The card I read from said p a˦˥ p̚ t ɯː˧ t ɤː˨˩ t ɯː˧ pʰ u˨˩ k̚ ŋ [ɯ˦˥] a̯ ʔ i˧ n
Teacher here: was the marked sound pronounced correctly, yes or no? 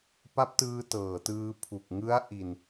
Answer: yes